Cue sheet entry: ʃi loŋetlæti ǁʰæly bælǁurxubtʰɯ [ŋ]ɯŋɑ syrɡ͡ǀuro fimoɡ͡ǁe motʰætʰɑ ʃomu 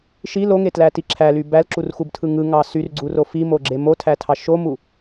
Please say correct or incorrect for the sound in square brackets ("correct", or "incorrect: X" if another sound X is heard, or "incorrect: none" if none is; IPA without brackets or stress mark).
correct